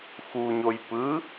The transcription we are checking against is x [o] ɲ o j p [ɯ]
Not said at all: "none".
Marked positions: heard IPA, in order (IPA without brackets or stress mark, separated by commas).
u, ɯ